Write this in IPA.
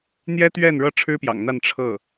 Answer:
n̪jɛ˥t̪ɥɛ˥˩n ɻɤ˥ʈ͡ʂʰɻ̩˥pjɑ̰˨˩ŋn̪a˥˧n ʈ͡ʂʰɤ˥˩

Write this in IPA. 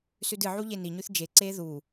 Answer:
sʉdɨʕu ʎeniɲʉθ d͡ʒeǀeː ðu

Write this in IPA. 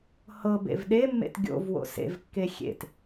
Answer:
hɤbḛv ɗemːḛt ɡʲo̰vwo̰ sḛvkːe xʲḛt

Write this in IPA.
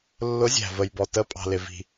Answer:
lːʊ˨˥zʲæ̤˩ və˩jbɔ˩ tə˨˥pʼɑ̤˩lɪ˩vi̤˩

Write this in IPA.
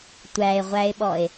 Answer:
tʷæe̯ʁʷæe̯ɓɔe̯

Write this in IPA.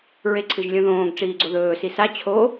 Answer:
ɹeǀʰɨʒlʲõðõːɡ ʈ͡ʂiːɡ͡ǀoðɵː sisa t͡ɕʰo

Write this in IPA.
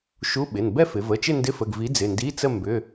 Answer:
ʃu˧˥˧ɓɪ˩˧˩n bɛ˥˧fɪ˩˧və˩˧˩t͡ʃɪ˥˧ ndɪ˧˥˧fə˩˧˩ɡvi˨˥ d͡zɪ˩˧˩ndi˧˥˧t͡sə˥˧ mbʏ˩˧˩

